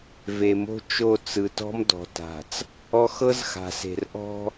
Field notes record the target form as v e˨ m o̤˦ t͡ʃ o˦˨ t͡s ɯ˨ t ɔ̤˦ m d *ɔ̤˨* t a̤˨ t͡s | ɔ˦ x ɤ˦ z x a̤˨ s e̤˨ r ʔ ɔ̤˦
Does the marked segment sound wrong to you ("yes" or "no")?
no